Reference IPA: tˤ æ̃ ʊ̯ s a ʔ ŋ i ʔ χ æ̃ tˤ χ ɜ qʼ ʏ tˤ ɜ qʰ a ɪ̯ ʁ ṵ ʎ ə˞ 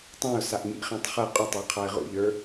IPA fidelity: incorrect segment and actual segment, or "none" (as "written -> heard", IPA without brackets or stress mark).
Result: none